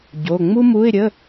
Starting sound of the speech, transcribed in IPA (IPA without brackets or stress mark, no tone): ɟ